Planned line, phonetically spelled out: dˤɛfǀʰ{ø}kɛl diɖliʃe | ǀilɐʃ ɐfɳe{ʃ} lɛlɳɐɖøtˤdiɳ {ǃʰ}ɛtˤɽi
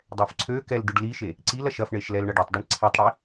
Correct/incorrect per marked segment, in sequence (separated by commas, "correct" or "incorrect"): correct, correct, incorrect